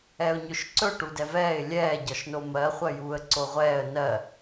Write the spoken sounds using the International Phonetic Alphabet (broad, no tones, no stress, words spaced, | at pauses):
ɛʊ̯ɲɵʃǀɵ ʈudɛvɛːɪ̯ lʲɛː ɟɒʃnomɜ χʷɜjuːə̯ǀoʁʷɛːə̯ nɜ